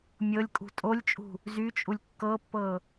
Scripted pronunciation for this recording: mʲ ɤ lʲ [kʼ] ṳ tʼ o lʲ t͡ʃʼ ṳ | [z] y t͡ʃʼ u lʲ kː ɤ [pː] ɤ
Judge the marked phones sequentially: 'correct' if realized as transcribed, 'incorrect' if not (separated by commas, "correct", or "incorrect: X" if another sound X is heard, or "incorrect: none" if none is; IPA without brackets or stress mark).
correct, correct, correct